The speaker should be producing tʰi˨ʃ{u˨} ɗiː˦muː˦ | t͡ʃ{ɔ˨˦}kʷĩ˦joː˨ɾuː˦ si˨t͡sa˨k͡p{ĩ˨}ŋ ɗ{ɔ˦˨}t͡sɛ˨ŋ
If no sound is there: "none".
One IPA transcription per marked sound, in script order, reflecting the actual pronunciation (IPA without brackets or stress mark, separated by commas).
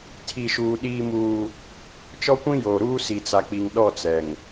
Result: uː˨, ɔ˦, i˨, ɔ˦˨